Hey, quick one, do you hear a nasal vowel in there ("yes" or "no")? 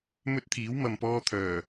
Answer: no